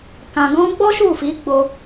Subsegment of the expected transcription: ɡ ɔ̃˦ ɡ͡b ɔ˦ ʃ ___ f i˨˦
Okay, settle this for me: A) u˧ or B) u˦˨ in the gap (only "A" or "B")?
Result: B